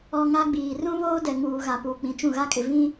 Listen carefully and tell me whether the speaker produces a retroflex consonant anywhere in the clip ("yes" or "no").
no